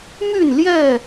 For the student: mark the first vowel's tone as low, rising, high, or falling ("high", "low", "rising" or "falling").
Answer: falling